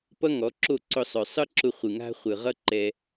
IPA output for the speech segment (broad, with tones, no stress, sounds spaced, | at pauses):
p ʌ˦ ŋ ɔ˨˦ ǁ o˦˨ ǀ ʊ˧ sˤ œ˨ sˤ ɯ˦ ǁ ʊ˧ χʷ ɯ˨ ŋ a̤˦ χʷ ɯ˨ ʁ ʌ˦ ǃ ɛ˧